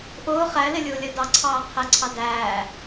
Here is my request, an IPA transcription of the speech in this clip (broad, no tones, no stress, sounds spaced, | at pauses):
ʔ ʊː χ æ l ɪ lʲ ʊː lʲ ɜ d ɑ ǀʰ ɑː qʰ ɛ ǀʰ ɑ d æː